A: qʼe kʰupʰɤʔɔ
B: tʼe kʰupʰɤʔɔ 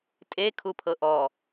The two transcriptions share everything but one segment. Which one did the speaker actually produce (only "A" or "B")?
B